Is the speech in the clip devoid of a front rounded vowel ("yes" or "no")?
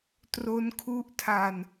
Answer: yes